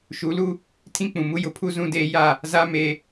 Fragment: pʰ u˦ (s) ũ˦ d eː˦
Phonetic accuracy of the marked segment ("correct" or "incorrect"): incorrect